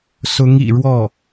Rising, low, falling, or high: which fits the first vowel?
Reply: rising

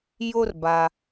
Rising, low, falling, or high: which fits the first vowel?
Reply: high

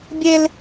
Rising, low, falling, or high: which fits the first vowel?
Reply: high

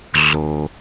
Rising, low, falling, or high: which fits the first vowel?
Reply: low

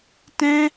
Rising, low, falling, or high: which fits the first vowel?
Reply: high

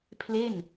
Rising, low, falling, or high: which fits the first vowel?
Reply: falling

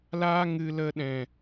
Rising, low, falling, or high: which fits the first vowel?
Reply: high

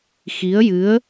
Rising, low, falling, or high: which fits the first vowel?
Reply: rising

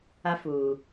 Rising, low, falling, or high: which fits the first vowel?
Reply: high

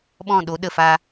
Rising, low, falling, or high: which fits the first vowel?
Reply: falling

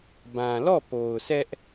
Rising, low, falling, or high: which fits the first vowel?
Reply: low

